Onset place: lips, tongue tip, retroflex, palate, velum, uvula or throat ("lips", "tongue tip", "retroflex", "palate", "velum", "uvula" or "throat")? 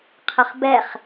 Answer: uvula